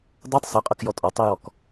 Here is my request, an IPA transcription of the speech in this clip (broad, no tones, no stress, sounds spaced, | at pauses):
dˤ ɜ tˤ s ɤ qʼ ɤ k j ɔ tʼ ɔ tˤ i j ɔ k